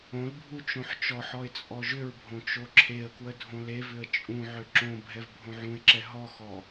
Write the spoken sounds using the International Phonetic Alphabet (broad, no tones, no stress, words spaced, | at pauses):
õlbʱu t͡ʃõħt͡ʃɔħɔɪ̯ t͡sʼɔʒʏɹbʱõ t͡ʃoǁʰeə̯kwə dʱõlevʏə̯ t͡ʃʼũʕʏ ǁõ bʱɛvbʱõʕũɪ̯ǁɛ ɦɔxɔ